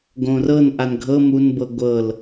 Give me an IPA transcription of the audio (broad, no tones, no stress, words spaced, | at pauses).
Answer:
ɡõrɤn ʔanɡʱɤ munbɤ ɡʷɤl